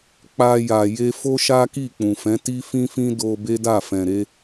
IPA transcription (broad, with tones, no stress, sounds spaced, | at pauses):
k͡p a˧ j a˨ j e˧ f o˦ ʃ a˦ k i˦˨ k͡p ũ˨ f ɛ̃˨˦ t i˦ f ĩ˦ f ĩ˦ d o˧ b e˦ d a˦˨ f ɛ̃˨ ɾ e˨˦